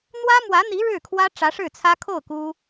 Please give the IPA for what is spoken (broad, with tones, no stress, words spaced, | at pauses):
n̪wä˥ mwä˧˥n̪i˧˥ ɻɻ̩˥˩kʰwä˥ ʈ͡ʂä˧˥ʂɻ̩˥˩t͡sʰä˥ kʰo˥˩ʊ̯ ku˥